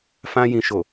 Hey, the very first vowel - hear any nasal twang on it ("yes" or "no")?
yes